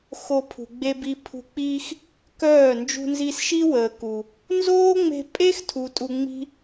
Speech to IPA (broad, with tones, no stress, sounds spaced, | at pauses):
x o˧ pʰ ṳ˨ ɡ͡b e˧ b i˧ pʰ ṳ˧ k͡p iː˦ x | k œː˦˨ n d͡ʒ ṳ˧ n z i˧ s ʃ i˦ w əː˨ k u˨ | n z oː˦ ŋ͡m e̤˧ pʼ e˦ x tʰ u˨ tʼ u˧ ŋ͡m i̤˦